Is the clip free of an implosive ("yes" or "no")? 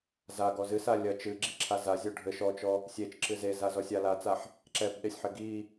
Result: no